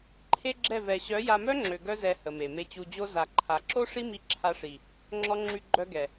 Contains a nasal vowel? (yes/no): no